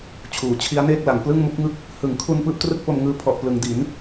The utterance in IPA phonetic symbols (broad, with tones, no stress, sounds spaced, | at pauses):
t͡ɕʰ uː˩˦ t͡ɕʰ i˦˥ a̯ n eː˥˩ k̚ l a˩˦ ŋ p l ɯ˥˩ ŋ m u˦˥ k̚ ŋ ɯ˥˩ k̚ | h ɯ˩˦ ŋ kʰ u˧ n p ɯː˥˩ p̚ t r ɯ˥˩ k̚ p o˧ m ŋ ɯː˦˥ pʰ ɔ˨˩ ʔ p l ɯ˩˦ ŋ d i˩˦ n